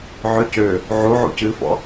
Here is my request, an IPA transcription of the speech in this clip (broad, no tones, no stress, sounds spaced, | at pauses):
ʕ ø c ø | ʕ u ʕ ṵ c ɨ f ɔ̰